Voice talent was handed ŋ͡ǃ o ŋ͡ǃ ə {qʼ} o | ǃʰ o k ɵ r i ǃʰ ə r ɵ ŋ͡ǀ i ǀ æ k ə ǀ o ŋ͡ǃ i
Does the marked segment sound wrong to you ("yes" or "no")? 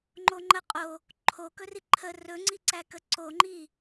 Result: no